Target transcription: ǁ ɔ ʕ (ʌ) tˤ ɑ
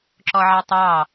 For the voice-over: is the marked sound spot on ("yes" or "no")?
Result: no